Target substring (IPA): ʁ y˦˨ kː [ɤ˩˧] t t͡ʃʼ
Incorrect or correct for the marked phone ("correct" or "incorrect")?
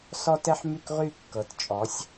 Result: correct